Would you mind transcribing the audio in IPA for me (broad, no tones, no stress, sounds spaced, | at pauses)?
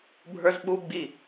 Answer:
bʱ ə˞ z ɓ u ɡ͡b i